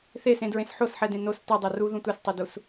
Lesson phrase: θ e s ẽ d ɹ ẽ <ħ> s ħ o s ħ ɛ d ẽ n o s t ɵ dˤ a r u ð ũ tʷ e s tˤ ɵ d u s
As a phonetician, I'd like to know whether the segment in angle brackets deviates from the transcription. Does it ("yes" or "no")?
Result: yes